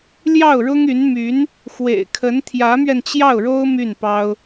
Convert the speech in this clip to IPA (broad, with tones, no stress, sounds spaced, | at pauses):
l j ɑ˥˩ ʊ̯ ɻ ʊ˥ ŋ y˧˥ n m y˧˥ n | x w ḛ˨˩ ɪ̯ kʰ ə˧˥ n t̪ʰ j ä˧˥ m ɥ ɛ˧ n t͡ɕ j ɑ˥˩ ʊ̯ ɻ o˥ ʊ̯ m y˥˩ n p ɑ˥ ʊ̯